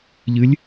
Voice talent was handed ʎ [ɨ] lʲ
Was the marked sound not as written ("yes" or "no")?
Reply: no